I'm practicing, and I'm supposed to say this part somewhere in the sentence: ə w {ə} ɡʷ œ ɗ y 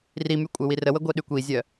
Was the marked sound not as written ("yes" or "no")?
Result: no